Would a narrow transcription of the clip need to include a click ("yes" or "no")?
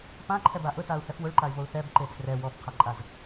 yes